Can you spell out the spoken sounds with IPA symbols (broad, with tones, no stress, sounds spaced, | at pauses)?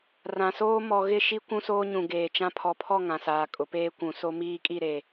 r ã˨ s oː˦ m ɔ˨ ɣ ɪ˦˨ ʃ i˦ kʷ ũ˦ s oː˦ ɲ ũ˨ ɡ eː˨ t͡ʃ ã˦ pʰ ɔ˨ pʰ ɔ˦˨ ŋ ã˨ s aː˨ kʼ ʊ˨˦ p eː˦ kʷ ũ˨ s o˦ m iː˦ kʼ i˦˨ ɾ e˨